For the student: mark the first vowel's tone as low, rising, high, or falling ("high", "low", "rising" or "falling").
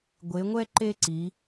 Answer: rising